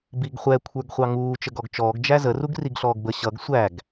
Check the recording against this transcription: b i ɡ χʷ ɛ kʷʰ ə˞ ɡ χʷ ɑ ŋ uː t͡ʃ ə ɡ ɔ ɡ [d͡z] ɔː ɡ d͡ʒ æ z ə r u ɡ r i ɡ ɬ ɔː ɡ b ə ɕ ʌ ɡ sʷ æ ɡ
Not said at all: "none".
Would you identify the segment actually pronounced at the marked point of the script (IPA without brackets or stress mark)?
t͡ʃ